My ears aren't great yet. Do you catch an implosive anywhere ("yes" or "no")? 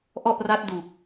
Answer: no